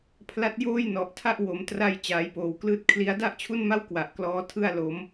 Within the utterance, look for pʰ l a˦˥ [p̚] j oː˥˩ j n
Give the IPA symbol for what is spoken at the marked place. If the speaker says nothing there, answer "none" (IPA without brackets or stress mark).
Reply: t̚